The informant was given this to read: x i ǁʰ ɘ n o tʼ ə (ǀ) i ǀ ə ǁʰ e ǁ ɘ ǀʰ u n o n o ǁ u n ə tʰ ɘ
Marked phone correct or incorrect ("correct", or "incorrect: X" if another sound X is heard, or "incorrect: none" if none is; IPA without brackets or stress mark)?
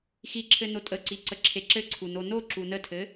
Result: correct